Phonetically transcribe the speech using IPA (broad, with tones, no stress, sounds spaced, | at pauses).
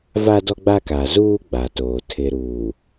v a˦ d ɔ˦ ɡ͡b a˦ k a˨ z uː˦ ɡ͡b a˨ t oː˨ tʰ ɪ˨ ɾ uː˨